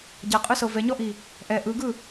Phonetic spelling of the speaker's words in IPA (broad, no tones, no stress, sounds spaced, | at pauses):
ɟ a qʼ ɯ s ɤ v ɛ ɲ ɔ ʔ i | ʔ ɛ ʔ ɯ ɡ ɯ